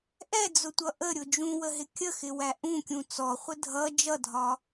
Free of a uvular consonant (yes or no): no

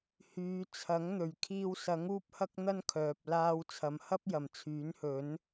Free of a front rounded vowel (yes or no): no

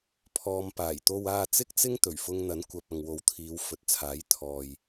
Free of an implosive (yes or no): yes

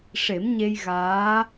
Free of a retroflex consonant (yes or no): no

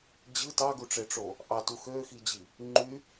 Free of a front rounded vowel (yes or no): no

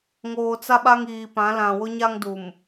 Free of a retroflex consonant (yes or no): yes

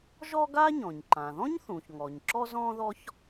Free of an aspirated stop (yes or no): yes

